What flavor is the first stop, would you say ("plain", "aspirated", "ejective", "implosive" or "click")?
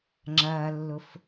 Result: click